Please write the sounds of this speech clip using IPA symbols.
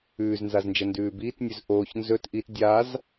ʉːznzaznd͡ʒɐ ndʉːbiːtnʲʉz ʔoːç nzɵt ʔit dʲaz

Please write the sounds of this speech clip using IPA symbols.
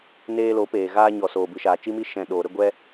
neː˧lo˨˦peː˨ ɣaː˧ɲɔ˨ soː˨bɨ˨ʃaː˨ t͡ʃi˧mi˧ ʃɛ̃˨ ɗoː˨ ɾə˦˨ɡʷɛ˧

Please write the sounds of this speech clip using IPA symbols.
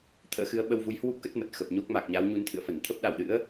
t̪ʰə̰ː˧˥xɨ˨˦ə̯ ɓə˧wvu˨˦jhwu˦˥p̚kə˦˥t̚ mə˨˩t̚xə˨˩p̚ɲo˦˥k̚ ma˨˩k̚ɲa˨˦w ɲu˨˦nt̪ʰɨ̰˧˨ə̯fə˧˩n t̪ʰə˦˥p̚ɗa˧˩wɗɨ̰˧˥ə̯

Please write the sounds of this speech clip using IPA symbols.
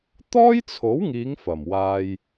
t̪ɔː˥jt͡sʰo˨˥wŋiː˨˧ŋ fɐ˨˩mwaː˧j

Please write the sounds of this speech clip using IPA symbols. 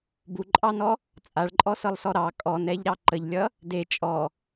buǃʼɑnɔ | t͡sʼaɭǃʼɔsɤlˠsɔ ɾɑ kʼɔnɛʎɾɑ ǃəʎlʲʌ | de t͡ʃʼɔ

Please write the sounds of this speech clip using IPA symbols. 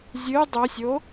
zʲɨ dˤosʲo

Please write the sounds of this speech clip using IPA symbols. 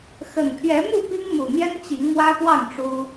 xə˨˩n pʰɥɛ˨˦mu˥˨ pi˦ŋmu˨˩n̪jɛ˦n t͡ɕi˨˦ŋmwä˦pwɑ˥˨ŋ ʈ͡ʂu˦

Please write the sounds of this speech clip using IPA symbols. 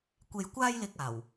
kʷe˨jkʷaː˧jlɪ˨k̚ aː˨˩w

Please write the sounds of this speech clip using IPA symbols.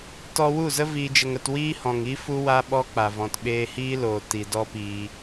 tɔ˧wu˦˨zə˦ viː˧d͡ʒə˧ŋə˧t wiː˦hɔ̃˨ŋi˦ fu˦wa˦ɓɔ˦k͡pa˨ vɔ̃˨tɓeː˧hiː˦loː˨ ti˨dɔ˦piː˧

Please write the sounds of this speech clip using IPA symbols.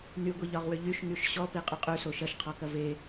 nyɡʷiʎɒʁwʏ ʎyʃŋyʃ ɕɔpiqʼʏ qʼyso ʃɐʃqʰɔkɐv e

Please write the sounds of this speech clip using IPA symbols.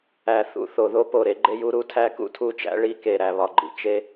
æ˨θṵ˨ θo˨ðo˦po˨ɾe˦ ɡ͡ǃe˦ju˦ ɾu˦tʰæ˦ kṵ˦tʰu˦t͡ʃæ̰˦ ɭi˦ke˨ ɾæ˨βɒ˨ɡ͡ǃḭ˨ t͡ʃe˦

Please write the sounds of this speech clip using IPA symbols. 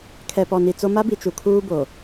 kʰɛ˨pɔ˨ni˨t͡so˦ ma˦bi˨ t͡ʃu˨kʰuː˦ bo˨

